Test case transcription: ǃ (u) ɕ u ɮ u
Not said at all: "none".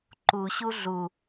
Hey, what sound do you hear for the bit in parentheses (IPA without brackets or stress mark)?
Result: u